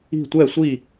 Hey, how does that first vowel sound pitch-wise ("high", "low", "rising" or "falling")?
falling